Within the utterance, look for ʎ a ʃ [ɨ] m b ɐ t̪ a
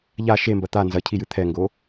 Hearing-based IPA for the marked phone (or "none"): e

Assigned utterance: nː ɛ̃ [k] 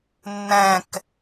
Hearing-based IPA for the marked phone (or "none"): k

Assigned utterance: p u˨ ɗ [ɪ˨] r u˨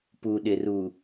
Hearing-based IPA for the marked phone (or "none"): ɪ˨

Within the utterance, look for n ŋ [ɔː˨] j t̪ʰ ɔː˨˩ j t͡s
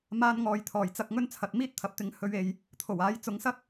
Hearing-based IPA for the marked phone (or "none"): ɔː˨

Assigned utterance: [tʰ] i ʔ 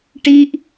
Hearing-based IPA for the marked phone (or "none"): ʈ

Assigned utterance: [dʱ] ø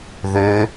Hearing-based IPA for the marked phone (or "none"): ð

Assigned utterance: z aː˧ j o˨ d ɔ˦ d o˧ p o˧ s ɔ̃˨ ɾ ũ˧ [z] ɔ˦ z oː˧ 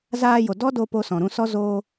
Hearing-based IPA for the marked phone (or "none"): s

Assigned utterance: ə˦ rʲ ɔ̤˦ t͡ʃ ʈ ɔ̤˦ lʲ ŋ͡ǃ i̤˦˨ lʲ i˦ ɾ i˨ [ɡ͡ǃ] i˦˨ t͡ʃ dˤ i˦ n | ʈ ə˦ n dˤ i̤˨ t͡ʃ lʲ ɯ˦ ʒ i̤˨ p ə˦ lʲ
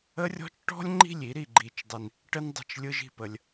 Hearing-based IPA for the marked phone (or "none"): ɡ͡ǃ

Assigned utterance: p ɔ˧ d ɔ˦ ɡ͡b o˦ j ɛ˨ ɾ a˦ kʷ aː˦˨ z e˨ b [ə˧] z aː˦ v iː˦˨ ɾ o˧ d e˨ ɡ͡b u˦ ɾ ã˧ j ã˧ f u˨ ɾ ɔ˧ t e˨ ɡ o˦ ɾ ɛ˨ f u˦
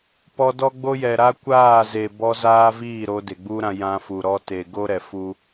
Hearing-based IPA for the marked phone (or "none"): ɔ˧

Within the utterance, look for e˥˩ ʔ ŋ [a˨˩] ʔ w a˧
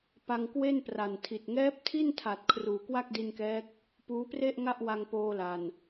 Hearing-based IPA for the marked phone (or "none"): a˥˩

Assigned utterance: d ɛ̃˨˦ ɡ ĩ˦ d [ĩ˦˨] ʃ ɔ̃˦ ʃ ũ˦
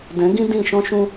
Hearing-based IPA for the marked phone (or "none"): ĩ˦˨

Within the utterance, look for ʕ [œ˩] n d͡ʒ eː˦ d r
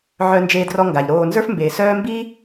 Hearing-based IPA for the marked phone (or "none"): œ˦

